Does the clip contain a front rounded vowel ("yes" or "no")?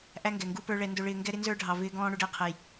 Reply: no